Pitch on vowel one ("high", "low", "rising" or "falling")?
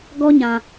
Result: high